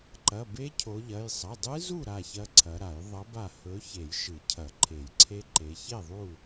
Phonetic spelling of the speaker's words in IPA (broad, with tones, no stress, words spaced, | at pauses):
ǃɐ˩˧˩be˦˥cʰo˨˦ʎɐ˩˧˩j sˤɐ˩˧˩dˤɨ˦˥zu˥˨ ɾa˥˨çɐ˦˥ǀʰɐ˨˦ɾa˨˩˦j ðˤɐ˨˦ba˧˩hɵ˨˦ çe˨˩˦jʃɨ˨˩˦cʰɐ˨˩˦ ǃʰe˨˩˦jǀʰe˦˥ǃe˨˦ çe˥˨ðˤu˥˨